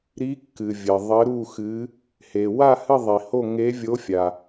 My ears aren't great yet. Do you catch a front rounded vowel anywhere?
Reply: no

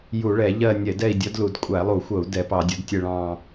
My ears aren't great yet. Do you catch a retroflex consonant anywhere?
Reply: yes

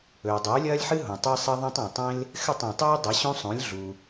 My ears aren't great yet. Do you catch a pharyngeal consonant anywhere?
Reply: yes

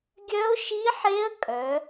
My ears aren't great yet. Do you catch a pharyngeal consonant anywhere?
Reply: yes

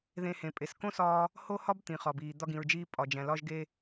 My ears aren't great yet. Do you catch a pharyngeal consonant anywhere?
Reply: no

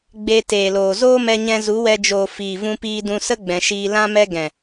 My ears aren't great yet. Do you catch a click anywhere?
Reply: no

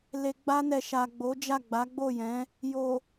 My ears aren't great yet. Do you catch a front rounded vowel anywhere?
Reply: no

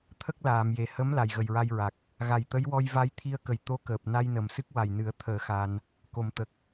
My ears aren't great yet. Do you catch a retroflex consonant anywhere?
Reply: no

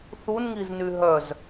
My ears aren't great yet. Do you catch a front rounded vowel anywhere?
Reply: yes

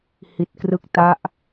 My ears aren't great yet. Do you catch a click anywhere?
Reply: no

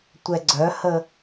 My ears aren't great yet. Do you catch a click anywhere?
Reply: yes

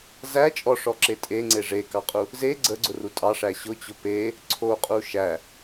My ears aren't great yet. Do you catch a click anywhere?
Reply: yes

